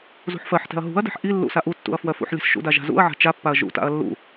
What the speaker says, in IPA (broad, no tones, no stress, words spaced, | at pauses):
zṳħfɜħtɛ̤ɐ̯ ɦṳɐ̯dɛ̤ħ ʔi lːṵsaʔutːṵɐ̯ fwɜfṵħlʲɛ̤s ʃṵda ʒa̤zṵɐ̯ʕa̤ t͡ʃapːaɐ̯ ʒṵta̰ɐ̯ lːṵ